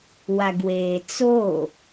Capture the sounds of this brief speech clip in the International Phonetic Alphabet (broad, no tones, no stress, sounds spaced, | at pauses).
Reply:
w a ɡ w eː t͡s o